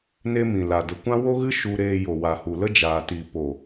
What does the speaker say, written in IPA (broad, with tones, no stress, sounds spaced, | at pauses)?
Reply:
n e˦ m ĩ˨ l a˨ d ə˨ kʷ ã˦ w o˦ ɣ ɨ˦ ʃ u˧ ɾ eː˧ j o˨ w a˨ h u˨ l ə˦ d͡ʒ aː˨ t i˨ p o˨